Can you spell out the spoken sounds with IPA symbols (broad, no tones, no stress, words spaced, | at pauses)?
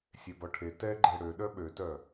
sʲebɔʈʰe tɛ ɡ͡ǃɛɽø ɗœɓøtœ